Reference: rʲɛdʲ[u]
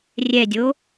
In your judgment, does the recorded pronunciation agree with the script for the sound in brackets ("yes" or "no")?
no